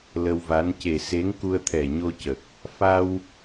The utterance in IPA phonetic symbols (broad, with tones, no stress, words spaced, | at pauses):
lə˧wva˧˥n ce˨˩ se˧˥ŋku˧ə̯t̪ʰɛ˨˩ ɲo˧cə˨˩k̚ | fa˧w